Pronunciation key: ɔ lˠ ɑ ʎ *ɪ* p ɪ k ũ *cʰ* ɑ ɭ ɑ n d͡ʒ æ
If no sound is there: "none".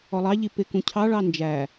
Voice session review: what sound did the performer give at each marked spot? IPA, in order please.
i, cʰ

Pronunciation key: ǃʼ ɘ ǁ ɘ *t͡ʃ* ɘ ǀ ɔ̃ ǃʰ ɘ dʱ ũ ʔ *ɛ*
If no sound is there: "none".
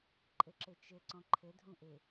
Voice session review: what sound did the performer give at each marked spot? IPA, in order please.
t͡ʃ, e

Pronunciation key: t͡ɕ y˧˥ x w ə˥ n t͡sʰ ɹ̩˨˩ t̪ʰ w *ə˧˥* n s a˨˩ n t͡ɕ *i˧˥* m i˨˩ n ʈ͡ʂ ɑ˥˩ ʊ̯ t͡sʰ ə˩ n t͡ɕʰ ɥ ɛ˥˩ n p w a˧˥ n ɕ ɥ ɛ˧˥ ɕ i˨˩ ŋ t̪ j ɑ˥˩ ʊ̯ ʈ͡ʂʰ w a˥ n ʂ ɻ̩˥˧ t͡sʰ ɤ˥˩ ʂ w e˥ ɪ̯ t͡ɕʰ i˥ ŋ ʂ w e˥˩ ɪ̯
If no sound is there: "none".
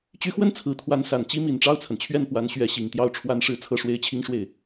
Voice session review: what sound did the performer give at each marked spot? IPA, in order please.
a˧˥, i˥

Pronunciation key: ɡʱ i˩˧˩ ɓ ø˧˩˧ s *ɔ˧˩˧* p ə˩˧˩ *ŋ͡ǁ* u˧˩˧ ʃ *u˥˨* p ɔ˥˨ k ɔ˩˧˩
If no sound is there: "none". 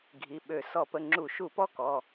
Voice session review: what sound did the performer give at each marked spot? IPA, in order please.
ɔ˧˩˧, ŋ͡ǁ, u˧˩˧

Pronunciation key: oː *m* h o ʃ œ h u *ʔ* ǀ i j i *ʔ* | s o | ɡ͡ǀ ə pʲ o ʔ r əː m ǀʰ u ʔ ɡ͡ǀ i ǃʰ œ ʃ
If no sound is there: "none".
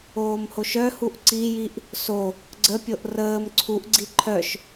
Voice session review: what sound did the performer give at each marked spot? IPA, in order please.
m, ʔ, ʔ

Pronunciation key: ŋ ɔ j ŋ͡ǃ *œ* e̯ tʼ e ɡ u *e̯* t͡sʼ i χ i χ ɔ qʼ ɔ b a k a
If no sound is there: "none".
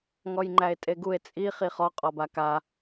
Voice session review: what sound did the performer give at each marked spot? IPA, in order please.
æ, e̯

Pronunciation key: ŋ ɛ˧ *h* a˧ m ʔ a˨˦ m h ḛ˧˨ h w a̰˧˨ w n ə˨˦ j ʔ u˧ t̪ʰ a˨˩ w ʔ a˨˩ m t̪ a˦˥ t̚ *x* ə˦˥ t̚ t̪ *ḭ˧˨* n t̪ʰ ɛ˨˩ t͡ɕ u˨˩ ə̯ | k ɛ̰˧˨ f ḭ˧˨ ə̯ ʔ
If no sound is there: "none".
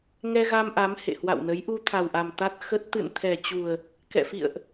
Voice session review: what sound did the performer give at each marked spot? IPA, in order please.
ɣ, x, ɨ̰˧˨

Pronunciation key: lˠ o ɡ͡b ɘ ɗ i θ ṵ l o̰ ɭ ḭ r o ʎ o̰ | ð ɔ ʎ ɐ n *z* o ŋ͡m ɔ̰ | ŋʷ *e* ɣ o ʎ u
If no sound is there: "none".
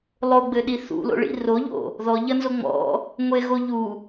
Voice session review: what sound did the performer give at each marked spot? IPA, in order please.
z, e

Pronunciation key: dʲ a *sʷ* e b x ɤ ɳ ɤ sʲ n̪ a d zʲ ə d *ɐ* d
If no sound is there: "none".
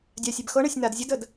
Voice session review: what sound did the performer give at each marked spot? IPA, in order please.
sʲ, ə

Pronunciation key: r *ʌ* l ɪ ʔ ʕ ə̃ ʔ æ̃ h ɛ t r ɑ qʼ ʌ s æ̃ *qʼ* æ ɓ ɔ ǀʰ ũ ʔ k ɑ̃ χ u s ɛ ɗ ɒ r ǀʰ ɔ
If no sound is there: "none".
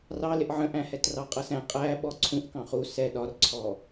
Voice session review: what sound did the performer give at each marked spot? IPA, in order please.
ɑ, qʼ

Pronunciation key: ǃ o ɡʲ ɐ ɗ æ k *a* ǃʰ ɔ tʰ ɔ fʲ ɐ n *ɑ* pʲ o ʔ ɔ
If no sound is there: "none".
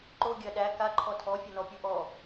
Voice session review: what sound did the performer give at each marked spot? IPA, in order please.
a, ɔ

